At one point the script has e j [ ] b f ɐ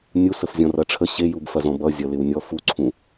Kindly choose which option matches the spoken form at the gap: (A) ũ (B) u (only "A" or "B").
B